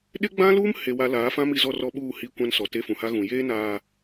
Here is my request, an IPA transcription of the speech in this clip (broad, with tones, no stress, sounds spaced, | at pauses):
ɗ ɪ˦ ɡ͡b ã˦ l uː˦ m h e˨ w a˨ l aː˨˦ f ã˦ m i˨ z ɔ˦˨ r ɔ˦ ɓ uː˦˨ h i˦ kʷ ã˦ n s ɔ˨ t e˦ f ũ˨ h a˦ ɣ ũ˨ j eː˦ n aː˨